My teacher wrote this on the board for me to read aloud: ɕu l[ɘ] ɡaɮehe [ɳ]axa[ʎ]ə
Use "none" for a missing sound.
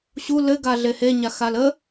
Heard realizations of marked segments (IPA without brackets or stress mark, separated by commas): ɘ, ɲ, l